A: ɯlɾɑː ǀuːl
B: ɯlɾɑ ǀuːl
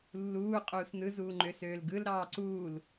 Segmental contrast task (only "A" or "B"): A